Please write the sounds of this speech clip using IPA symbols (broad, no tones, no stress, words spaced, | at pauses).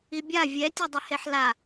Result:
ibʲa vʲɛ tʲɛdˤɛheħla